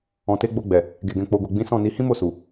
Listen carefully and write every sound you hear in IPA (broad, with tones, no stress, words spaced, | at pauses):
ɔ̃˨te˨˦ɡ͡bo˧ɡ͡bɛ˨ | ɡe˨ɡɛ̃˨ k͡po˨ɡo˨ɡ͡bĩ˨˦ sɔ̃˦˨ni˨˦ hĩ˦mo˦˨su˨